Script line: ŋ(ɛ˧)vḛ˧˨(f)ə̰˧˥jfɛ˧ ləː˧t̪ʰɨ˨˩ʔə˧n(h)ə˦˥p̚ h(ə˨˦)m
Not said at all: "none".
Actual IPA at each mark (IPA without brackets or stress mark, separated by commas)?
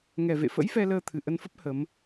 ɛ˨˩, f, f, ə˨˦